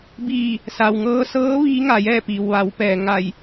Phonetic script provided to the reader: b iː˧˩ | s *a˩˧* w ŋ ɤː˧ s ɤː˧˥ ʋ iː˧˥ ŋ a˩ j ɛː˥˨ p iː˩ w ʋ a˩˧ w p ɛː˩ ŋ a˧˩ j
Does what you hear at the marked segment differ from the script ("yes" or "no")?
yes